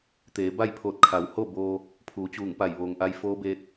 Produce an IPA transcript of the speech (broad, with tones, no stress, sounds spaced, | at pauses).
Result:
t̪ eː˩˧ b a˥˨ j pʰ oː˧˩ t̚ kʰ a˩˧ w h o˥˨ b oː˧ | pʰ uː˩˧ t͡ɕ uː˧˩ ŋ p a˧˩ j ʋ oː˩ ŋ ʔ a˧ j f oː˧˥ b eː˧ t̚